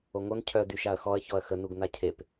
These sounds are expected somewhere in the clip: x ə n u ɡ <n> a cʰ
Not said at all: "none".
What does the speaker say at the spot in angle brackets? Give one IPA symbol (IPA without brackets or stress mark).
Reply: n